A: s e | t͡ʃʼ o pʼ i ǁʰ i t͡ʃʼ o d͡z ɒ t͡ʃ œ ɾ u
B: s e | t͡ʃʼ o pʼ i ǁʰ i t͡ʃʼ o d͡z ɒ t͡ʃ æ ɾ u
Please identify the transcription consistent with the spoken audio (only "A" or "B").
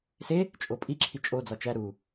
B